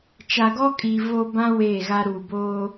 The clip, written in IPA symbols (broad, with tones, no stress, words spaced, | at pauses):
t͡ʃa˨ɡɔ˦kʼiː˨ vo˦ bã˦ weː˦˨ɣa˦ ɾuː˨boː˦